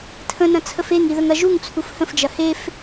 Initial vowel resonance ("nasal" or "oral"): nasal